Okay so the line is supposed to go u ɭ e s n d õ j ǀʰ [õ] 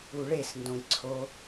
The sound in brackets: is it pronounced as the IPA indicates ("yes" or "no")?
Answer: no